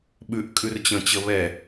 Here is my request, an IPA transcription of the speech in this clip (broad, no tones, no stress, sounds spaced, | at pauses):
ɓ ʉ ʔ kʼ ʉ r t͡ɕ ə̃ t͡ɕ ə β ɛ